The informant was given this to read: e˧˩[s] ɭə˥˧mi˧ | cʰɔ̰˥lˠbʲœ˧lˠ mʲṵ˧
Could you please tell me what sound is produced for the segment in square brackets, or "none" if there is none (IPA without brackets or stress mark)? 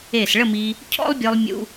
s